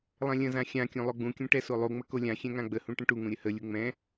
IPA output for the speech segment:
lˠ ɛ̃ lʲ ə̃ z ã xʲ ã kʲ ũ lˠ o ɡ͡b ũ kʲ ũ ʈ ɛ s o lˠ u ŋ͡m ə k o lʲ ã xʲ ɛ̃ ŋ ã ɡ͡b ə h ũ ʈ ə̃ ʈ u ŋ ũ ɾʲ ə h ə lʲ u ŋ͡m ɛ̃

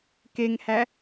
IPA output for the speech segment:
k e ŋ h æ

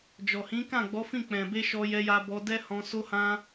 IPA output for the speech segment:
d͡ʒ ɔ˨ h ĩ˨˦ k ã˦˨ ɡ͡b ɔ˨˦ f ĩ˦˨ k͡p ɛ̃˨ b e˧ ʃ ɔ˧ j ɛ˧ j a˧ b ɔ˧ d ɛ˦ h ɔ̃˧ s o˦ h ã˦

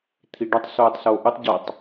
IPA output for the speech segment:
t̪ʰ i ɖ œ tˤ s oː tˤ s oː ʔ u tˤ ɟ ɔ tˤ

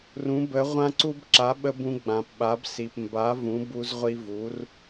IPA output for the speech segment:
r ũ˩˥ b ə˩˥ ʁʷ ã˧ ǀ u˧ b ǁ a˩˥ ɓ ə˧ b ũ˧ ɡ͡b ã˩ p ɓ a˩˥ b s i˩ p m b a˩˥ v ũ˩˥ b u˧ z ʁʷ i˧ v u˩˥ r

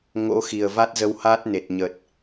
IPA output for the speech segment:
ŋ o̰˧˥ x i˨˩ ə̯ v a˦˥ t̚ z ə˧ w h aː˦˥ t̚ n e˨˩ t̚ ɲ ə˨˩ t̚

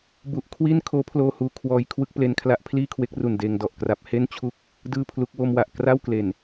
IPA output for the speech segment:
b u˨˩ ʔ kʰ w i˥˩ n kʰ oː˦˥ pʰ l oː˧ h uː˨˩ kʰ w ɔː˧ j kʰ w ɯ˥˩ k̚ p l e˦˥ n kʰ l a˦˥ ʔ pʰ l iː˥˩ kʰ w e˦˥ k̚ r u˨˩ n d eː˧ ŋ d ɔ˨˩ ʔ k r a˦˥ p̚ h e˥˩ n t͡ɕʰ u˥˩ k̚ | d ɯː˥˩ pʰ l u˦˥ k̚ w o˧ m w a˨˩ ʔ k r a˥˩ w k l e˨˩ n

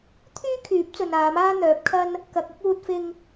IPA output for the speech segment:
t̪ʰ yː˥ kʰ yː˨˥ p̚ t͡s ɵ˨ n aː˨˧ m aː˥ n̪ œː˨˥ p̚ kʰ ɐ˥ n | k ɐ˨ k̚ ʊ˥ k̚ uː˧ t̚ f ɪ˧ ŋ

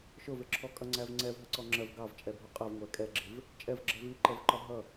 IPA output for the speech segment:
ʃ ʊ v ɪ ǁʰ ɔ kʼ ʌ ŋ͡ǀ æ v ŋ͡ǀ ɛ v ɦ ə ǀ ɔ ŋ͡ǁ ɜ v ɡ ɑ v t͡ʃʼ ɛ bʱ ʊ qʼ ɜ v ŋʷ æ kʼ ɛ ɡ͡ǁ ɪ v | t͡ʃʼ ɛ v ɡ͡ǁ ɜ v i ǃ ɛ v ǃ ɒ ɦ ʌ

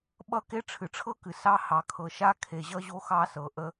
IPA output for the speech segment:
ɓ ʌ˥ k e˦ ʈ͡ʂʰ ɨ˩ ʈ͡ʂʰ ɤ˥ k ɨ˩ s ɑ˦ h ɑ˨ kʰ ɤ˨ ʃ a˥ kʰ e˨ ʑ ʌ˥ ʑ o˦ x ɑ˥ s ɤ˨ ʔ ə˦

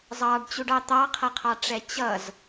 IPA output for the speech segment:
zˤ ɑ ɖ t͡ɕ u ɖ ɑ t̪ ɑ qʰ ʌ qʰ ɑ ʈ͡ʂ ɛ t͡ɕ ʌ z

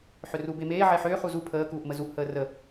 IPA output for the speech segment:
ħ ʏ r u b e m eː ʕ e ħ ʏː χ u z u pʰ əː k uː ʔ m ə z u ʔ h əː r ə

